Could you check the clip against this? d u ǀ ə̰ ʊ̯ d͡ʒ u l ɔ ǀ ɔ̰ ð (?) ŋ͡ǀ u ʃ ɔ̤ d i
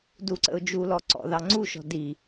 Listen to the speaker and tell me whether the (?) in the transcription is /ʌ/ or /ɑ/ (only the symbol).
ɑ